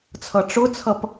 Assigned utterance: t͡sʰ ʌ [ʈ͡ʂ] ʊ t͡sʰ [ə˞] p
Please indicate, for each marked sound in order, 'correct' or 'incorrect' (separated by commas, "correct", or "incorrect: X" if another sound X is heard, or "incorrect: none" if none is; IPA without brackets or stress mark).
correct, incorrect: ʌ